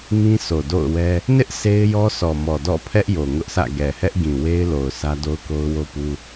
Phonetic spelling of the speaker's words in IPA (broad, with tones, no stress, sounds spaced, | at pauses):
ŋ ĩ˦ s o˨ d o̰˦˨ ʊ̯ w ɛ˦ | n ɪ˦ ʔ sʰ e˦ ɪ̯ j ɔ˦ sʰ ɔ˨ m ɔ˨ d ɔ̰˦˨ pʰ ɛ˦ ʔ j o˨ ŋ ʊ˦ ʔ sʰ ä̰˦˨ ɡ ɛ˨ h ɛ˦ ʔ ɡ ĩ˨ w e˦ ɪ̯ l o˨ ʊ̯ s ä˦ d o˦ ʊ̯ k o˦ ʊ̯ w o˦ p u˦